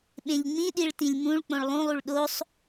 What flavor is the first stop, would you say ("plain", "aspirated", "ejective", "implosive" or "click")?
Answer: implosive